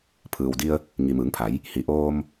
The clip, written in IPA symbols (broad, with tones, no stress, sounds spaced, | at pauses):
pʰ ɯː˩ w d i˧ ə̯ | ŋ i˩ m ɯː˩˧ ŋ pʰ a˩˧ j | h i˩ ʔ oː˧ m